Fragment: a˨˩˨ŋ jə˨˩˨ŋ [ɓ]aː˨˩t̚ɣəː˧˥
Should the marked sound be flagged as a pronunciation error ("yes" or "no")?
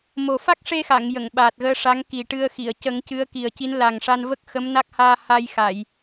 no